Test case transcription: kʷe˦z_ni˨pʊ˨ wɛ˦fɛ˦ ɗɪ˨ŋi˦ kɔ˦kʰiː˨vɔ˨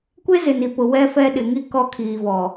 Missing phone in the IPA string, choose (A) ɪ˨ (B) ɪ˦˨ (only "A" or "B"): A